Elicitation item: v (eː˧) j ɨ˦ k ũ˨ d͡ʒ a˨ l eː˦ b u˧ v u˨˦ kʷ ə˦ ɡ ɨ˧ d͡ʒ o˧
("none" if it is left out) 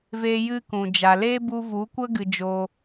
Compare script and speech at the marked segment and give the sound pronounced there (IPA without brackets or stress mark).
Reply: eː˧